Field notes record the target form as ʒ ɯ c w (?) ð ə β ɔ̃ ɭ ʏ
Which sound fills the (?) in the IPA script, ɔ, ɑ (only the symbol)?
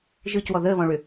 ɔ